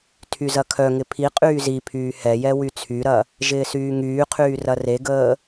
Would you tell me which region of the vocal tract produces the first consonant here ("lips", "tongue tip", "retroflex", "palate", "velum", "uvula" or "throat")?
tongue tip